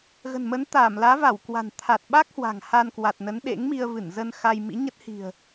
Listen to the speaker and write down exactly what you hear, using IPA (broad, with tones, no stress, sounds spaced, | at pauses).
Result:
ɣ ə̤˨˩ n m ə˨˦ n t̪ aː˧˩ m l aː˨˦ v a˧˩ w k w a̤˨˩ n t̪ʰ a˨˩ t̚ ɓ a˦˥ k̚ h w a̤˨˩ ŋ h a˧ n k w a˨˩ t̚ n ə˨˦ n ɗ ḛ˧˥ ŋ m i˧ ə̯ v ɨ˧˩ n z ə˧ n x a˧ j m ḭ˧˥ ɲ ə˦˥ t̚ h i̤˨˩ ə̯